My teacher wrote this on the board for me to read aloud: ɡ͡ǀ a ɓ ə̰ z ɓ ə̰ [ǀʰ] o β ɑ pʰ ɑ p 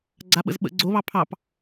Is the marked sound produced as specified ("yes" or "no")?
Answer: no